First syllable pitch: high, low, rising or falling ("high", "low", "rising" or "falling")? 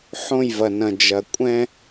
falling